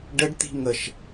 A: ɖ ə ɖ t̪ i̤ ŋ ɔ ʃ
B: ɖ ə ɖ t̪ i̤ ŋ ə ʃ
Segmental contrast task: B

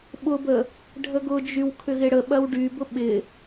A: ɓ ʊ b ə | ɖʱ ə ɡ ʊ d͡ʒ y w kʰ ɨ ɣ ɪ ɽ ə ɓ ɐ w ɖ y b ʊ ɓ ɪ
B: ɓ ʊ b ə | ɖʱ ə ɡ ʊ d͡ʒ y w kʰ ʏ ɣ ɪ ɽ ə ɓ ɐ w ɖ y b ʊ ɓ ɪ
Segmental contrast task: B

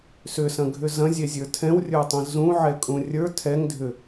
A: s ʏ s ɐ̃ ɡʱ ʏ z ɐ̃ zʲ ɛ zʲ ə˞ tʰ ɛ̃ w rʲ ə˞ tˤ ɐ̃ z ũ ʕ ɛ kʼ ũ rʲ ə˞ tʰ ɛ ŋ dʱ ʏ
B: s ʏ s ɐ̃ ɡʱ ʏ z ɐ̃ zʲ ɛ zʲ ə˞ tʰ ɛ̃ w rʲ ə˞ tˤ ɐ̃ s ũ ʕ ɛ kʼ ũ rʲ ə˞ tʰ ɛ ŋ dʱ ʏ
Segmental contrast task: A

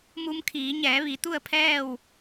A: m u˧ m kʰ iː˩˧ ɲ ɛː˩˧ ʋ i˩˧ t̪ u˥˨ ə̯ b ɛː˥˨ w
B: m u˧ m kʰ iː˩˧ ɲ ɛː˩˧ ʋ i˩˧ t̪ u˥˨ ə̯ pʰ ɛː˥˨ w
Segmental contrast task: B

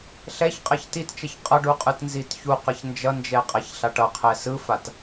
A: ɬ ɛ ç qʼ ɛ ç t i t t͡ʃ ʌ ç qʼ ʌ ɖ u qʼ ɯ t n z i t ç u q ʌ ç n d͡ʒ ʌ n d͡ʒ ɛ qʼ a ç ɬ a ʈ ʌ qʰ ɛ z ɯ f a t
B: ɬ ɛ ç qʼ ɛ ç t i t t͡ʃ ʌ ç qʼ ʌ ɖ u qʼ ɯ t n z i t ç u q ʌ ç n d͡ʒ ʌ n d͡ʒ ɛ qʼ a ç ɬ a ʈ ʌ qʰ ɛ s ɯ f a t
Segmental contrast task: B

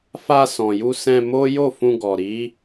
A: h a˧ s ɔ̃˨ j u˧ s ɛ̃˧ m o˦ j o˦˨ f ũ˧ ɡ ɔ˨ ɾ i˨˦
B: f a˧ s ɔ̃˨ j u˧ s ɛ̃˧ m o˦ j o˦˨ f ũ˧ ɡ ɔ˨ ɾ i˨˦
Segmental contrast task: B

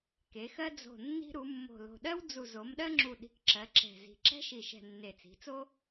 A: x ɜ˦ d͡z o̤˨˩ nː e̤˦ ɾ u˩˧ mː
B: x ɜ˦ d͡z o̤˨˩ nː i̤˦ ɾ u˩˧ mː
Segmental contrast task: B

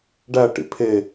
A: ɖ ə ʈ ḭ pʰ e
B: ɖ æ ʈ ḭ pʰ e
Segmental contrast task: B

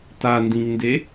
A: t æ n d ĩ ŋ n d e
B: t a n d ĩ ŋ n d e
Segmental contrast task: B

